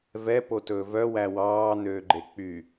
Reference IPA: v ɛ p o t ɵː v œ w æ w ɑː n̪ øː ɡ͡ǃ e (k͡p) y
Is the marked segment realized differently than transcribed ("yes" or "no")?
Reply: no